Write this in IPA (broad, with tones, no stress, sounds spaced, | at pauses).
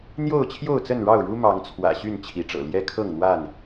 n̪ j o˥˨ ʊ̯ t͡ɕʰ j o˥˨ ʊ̯ t͡s ə˥˨ n ɻ ɑ˥˨ ʊ̯ ɻ u˦ m ɑ˨˦ ŋ t͡sʰ w ä̰˨˩ ɕ y˥˨ n t͡ɕʰ i˨˦ ʈ͡ʂ ɤ̰˨˩ l j ɛ˦ kʰ ɤ˥˨ ŋ n̪ w a˥˨ n